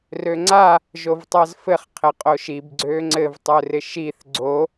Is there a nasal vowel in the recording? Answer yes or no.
no